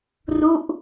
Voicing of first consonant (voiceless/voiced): voiced